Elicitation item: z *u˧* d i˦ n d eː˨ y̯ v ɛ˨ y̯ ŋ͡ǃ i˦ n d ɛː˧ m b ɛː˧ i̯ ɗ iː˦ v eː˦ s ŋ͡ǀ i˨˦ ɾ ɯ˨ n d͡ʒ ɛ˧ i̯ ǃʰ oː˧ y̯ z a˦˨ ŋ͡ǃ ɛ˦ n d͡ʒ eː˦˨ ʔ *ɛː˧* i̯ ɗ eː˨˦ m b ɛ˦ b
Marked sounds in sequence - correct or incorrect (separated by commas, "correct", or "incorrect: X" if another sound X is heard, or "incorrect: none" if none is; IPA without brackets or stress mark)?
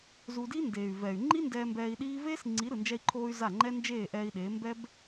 correct, correct